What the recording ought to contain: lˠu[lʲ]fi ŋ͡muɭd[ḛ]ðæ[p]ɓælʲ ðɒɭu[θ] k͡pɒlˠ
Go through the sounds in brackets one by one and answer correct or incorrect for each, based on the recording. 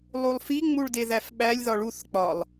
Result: incorrect, incorrect, incorrect, correct

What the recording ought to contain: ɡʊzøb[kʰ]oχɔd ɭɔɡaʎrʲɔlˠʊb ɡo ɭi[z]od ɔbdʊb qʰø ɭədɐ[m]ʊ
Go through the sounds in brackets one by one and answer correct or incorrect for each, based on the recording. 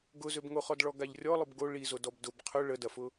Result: incorrect, correct, incorrect

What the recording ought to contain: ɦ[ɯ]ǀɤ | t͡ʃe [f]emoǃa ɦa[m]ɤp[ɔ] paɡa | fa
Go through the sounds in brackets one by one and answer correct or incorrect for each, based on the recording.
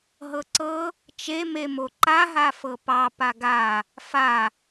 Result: incorrect, incorrect, incorrect, incorrect

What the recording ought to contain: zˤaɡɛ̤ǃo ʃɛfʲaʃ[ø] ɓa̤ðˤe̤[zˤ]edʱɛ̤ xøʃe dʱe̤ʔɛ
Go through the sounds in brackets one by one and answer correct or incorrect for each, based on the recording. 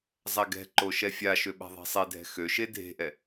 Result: correct, incorrect

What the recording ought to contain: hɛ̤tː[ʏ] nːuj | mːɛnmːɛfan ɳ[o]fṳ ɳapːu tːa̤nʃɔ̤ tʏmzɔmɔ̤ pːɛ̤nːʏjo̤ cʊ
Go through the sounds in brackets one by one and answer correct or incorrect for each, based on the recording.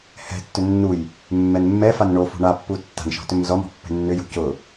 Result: correct, correct

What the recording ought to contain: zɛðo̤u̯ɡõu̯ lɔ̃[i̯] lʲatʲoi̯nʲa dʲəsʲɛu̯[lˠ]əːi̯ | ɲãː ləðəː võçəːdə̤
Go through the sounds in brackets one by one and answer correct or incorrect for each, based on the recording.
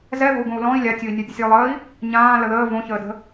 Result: correct, correct

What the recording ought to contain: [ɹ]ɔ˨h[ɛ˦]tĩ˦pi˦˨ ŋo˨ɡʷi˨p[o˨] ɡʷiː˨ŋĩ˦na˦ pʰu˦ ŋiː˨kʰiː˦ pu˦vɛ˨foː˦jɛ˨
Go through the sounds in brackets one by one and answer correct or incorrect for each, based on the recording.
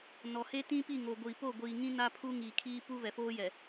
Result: incorrect, incorrect, incorrect

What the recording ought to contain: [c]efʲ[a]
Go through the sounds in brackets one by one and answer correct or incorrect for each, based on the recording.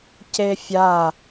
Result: correct, correct

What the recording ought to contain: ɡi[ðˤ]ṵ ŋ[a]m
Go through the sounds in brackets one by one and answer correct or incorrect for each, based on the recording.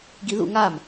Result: incorrect, correct

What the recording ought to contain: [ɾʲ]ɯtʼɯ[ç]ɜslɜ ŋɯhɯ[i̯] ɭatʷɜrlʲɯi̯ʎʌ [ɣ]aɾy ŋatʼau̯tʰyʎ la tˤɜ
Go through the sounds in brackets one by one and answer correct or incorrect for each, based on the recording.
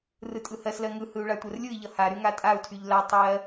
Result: incorrect, incorrect, incorrect, incorrect

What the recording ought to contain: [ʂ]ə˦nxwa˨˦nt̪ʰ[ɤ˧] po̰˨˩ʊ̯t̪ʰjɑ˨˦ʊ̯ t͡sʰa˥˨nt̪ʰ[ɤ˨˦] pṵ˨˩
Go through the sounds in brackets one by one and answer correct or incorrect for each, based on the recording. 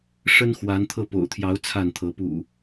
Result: correct, correct, correct

